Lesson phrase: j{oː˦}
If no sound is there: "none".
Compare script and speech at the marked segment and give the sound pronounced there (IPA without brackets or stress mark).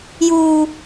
uː˦